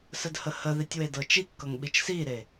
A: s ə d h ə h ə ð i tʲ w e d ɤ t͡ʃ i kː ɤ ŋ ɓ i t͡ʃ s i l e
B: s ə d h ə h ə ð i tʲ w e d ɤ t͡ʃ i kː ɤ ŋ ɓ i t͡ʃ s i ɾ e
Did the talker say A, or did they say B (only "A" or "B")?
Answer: B